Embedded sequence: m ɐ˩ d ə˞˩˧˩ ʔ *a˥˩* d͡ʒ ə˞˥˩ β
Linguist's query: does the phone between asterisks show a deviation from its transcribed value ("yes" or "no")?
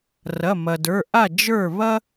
no